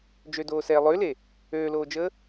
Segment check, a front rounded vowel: present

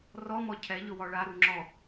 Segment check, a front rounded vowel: absent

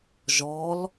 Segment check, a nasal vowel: absent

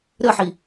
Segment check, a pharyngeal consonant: present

